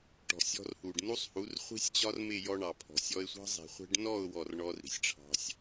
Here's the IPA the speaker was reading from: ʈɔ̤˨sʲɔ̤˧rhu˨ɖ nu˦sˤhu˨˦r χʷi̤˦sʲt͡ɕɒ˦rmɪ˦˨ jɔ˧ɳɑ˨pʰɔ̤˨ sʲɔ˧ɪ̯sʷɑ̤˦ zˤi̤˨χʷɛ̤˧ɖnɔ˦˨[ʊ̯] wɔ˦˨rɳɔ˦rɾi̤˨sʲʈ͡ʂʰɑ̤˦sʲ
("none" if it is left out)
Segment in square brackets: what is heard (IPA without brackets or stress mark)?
ʊ̯